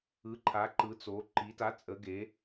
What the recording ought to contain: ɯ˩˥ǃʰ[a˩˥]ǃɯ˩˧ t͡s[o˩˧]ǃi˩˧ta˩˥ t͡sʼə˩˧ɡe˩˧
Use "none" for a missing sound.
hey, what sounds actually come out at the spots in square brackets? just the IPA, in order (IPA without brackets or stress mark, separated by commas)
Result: a˩˥, o˩˧